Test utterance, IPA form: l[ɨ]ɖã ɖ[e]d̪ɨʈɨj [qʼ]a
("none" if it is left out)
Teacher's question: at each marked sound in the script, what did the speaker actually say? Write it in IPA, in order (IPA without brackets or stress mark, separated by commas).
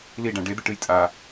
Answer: i, e, tʼ